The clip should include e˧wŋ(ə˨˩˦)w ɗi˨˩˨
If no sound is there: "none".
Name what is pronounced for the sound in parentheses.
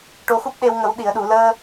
ə˨˩˦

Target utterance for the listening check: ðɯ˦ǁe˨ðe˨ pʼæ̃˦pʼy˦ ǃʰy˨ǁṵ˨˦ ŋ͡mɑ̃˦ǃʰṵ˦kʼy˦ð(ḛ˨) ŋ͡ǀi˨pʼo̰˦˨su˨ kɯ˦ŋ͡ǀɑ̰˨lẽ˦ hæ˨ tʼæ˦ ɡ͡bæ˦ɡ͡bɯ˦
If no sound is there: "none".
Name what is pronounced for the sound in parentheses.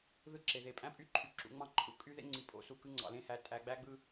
ḛ˦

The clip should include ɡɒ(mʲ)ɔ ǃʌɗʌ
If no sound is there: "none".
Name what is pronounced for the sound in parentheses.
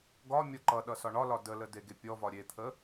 mʲ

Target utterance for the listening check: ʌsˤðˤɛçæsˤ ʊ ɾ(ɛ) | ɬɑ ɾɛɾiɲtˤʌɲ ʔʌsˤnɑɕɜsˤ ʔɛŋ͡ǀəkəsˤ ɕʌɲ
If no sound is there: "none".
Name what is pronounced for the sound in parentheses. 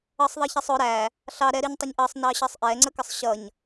æ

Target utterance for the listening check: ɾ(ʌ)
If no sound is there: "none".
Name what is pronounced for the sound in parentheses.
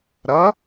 ʌ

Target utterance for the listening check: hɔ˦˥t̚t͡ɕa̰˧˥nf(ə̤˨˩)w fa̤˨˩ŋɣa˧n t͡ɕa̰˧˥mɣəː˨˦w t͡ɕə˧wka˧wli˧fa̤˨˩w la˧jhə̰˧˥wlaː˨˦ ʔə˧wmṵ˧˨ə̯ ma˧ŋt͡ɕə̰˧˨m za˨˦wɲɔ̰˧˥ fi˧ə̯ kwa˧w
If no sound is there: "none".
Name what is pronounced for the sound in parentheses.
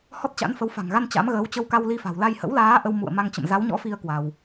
ə˨˦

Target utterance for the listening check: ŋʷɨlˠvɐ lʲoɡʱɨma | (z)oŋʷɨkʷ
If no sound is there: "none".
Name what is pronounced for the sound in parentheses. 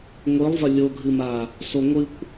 s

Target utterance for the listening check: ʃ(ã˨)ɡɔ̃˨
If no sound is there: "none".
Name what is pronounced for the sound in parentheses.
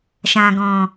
ã˨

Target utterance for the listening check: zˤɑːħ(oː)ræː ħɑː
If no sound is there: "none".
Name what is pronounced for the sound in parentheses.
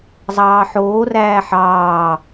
oː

